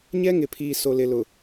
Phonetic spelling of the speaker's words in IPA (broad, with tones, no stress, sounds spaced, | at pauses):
ɲ ɛ˦ ŋ ɪ˨ pʰ iː˨ s o˨ l ɪ˨ l ʊ˨